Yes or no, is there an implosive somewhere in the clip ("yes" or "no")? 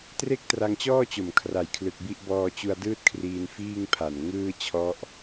no